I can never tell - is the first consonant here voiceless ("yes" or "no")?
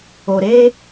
no